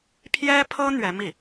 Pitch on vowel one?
high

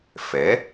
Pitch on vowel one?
rising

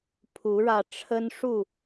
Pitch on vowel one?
rising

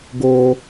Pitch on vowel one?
high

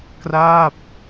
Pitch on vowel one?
falling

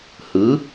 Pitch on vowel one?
rising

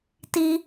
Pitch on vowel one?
high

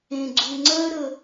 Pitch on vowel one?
low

